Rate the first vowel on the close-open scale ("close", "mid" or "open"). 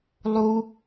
close